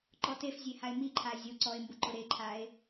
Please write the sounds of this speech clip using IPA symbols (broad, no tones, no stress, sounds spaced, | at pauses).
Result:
ǃ ɔ t e f zʲ e h a e̯ m i ǃʰ a zʲ o ǀ ɔ e̯ m b ʊ ǃ ʊ ɾ e ǃʰ a e̯